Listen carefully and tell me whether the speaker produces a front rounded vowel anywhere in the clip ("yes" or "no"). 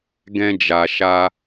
no